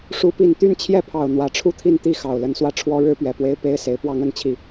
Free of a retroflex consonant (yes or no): no